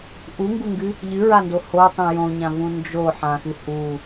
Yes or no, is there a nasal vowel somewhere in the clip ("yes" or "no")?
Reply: yes